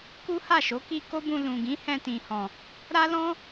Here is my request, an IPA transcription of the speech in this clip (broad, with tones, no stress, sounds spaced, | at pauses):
k u˦ h a˦˨ ʃ o˨˦ k i˧ k o˦ b ũ˧ l ũ˨ ɡ ĩ˨˦ h ɛ̃˧ t ĩ˨ h ɔ̃˨ | ɾ a˦ l ɔ̃˦